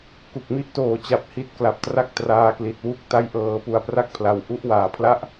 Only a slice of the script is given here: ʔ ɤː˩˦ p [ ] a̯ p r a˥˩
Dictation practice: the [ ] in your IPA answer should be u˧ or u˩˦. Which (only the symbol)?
u˧